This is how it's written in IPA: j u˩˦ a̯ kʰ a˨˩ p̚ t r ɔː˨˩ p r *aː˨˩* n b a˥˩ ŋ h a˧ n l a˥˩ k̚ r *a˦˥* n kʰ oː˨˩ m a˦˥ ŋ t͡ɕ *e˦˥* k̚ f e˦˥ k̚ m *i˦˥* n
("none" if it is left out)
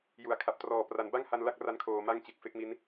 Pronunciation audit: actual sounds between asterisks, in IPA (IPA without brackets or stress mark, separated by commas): a˨˩, a˦˥, e˨˩, i˦˥